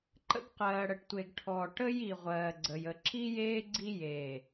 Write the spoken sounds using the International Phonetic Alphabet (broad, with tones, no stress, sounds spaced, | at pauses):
ǃ ə̰˦ ɡ q ɜː˨ ɽ ə˨ ʈ tʷ e˨ ɡ ʈʰ ɔ˨ ʈ ə˦ j i˨ ʁʷ ɜː˨ ɡ͡ǀ ə˨ j ə˨ ǁ i˦ j eː˦ ɡ͡ǀ i˦ j eː˨